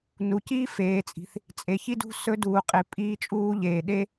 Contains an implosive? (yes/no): yes